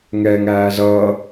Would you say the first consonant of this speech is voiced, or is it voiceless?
voiced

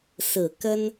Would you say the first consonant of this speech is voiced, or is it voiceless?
voiceless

